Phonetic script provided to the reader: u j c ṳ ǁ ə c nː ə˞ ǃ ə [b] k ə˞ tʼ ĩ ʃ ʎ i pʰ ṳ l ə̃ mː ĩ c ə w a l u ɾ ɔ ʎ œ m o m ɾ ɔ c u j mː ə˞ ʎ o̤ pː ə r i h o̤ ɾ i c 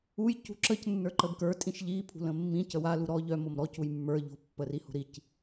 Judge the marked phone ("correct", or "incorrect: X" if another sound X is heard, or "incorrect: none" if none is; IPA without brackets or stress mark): correct